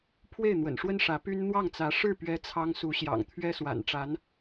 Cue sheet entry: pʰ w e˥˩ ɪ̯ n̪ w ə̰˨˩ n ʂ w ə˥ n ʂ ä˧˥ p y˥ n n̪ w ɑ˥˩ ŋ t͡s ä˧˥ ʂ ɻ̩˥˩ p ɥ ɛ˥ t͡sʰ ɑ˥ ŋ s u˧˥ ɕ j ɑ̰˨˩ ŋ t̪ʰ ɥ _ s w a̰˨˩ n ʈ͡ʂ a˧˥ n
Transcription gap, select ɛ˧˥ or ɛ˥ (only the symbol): ɛ˥